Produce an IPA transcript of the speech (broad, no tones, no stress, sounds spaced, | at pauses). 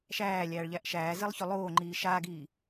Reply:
ʃ æː lʲ æː ɭ ʎ æ ʔ ʃ æː z ɪ lˠ ç ɵ lˠ oː ŋ͡ǃ iː ʃ aː ɡ iː